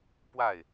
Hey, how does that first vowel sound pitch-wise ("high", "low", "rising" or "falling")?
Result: falling